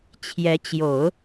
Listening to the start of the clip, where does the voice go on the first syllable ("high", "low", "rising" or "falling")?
rising